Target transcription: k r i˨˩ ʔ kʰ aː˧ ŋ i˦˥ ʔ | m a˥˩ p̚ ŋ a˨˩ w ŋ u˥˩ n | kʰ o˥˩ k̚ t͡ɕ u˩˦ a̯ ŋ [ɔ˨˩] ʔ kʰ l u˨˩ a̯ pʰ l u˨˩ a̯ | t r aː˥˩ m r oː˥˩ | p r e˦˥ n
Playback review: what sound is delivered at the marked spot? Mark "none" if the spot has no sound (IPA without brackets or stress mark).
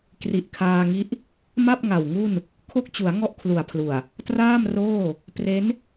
ɔ˥˩